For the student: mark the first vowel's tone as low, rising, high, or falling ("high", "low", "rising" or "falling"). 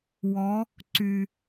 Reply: rising